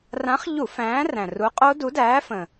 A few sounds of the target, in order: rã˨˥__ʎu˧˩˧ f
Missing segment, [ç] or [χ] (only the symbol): χ